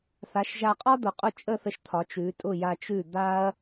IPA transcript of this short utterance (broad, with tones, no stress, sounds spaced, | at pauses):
θ a˩˥ ʃ ʒ a˧ qʼ ɒ˥ d̪ ʊ˩ qʼ ʊ˥˩ t͡ʃʼ ə˥˩ θ ə˧ ʃ t̪ʰ ɒ˩˥ t͡ʃ ʉ˩˥ tʼ ʊ˥˩ j a˧ t͡ʃ ʉ˥˩ d̪ a˥ ɐ̯